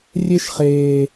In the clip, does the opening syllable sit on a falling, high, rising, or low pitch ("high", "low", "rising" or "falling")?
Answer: high